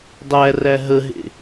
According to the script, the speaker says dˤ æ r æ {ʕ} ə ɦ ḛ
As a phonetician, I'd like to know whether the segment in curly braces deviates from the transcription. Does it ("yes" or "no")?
yes